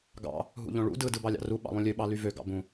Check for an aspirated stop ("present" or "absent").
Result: absent